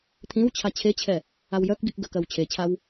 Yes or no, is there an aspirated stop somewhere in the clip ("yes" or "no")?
yes